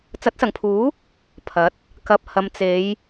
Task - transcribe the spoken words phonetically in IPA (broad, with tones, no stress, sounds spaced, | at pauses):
t͡s ɐ˨˥ t̚ s ɐ˨˩ ŋ pʰ uː˨˥ | pʰ ɐ˨˥ t̚ | k ɐ˨ p̚ h ɐ˨ m t͡s e˨˧ j